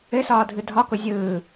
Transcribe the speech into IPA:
ɘ s ɒː dʱ ɯ dʱ ɒ k ʊ zʲ ɯː

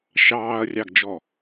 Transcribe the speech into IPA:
ʃ ɑː ɐ̯ rʲ ɑ ɡ d͡ʒ ɔ

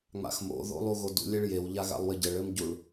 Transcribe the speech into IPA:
ŋ͡m a̰ x m o̰ ð o̰ lˠ u ɣ o d ṵ lʲ e ɭ j e w ʎ a ɣ a̰ lˠ w ɘ ɟ ɘ ɭ ɘ m ɟ u ɭ

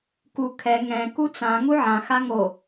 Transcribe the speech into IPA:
k u kʰ ɛ ŋ ɛ̃ k u t͡s ã ŋ u ʕ ã x a ŋ o

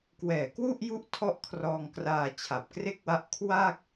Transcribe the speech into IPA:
k w ɛː˨˩ k w u˥˩ ʔ j u˦˥ ʔ tʰ ɔ˥˩ ʔ kʰ r ɔː˧ ŋ k r aː˧ t͡ɕʰ a˨˩ p̚ k r e˥˩ k̚ w a˦˥ ʔ kʰ w a˥˩ k̚

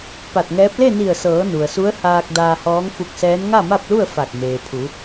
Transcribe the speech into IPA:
p a˧˩ t̚ ŋ ɛː˧˥ p̚ l e˥˨ n i˧˩ ə̯ s ɤː˩˧ n u˩ ə̯ s u˧˥ ə̯ h aː˧ k̚ d aː˧ h ɔː˧˥ ŋ f u˧ k̚ s ɛː˧˥ n ŋ a˥˨ m a˥˨ p̚ l u˥˨ ə̯ f a˧˩ k̚ m eː˩ pʰ u˩˧

